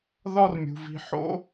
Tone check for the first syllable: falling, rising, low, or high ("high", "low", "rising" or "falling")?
high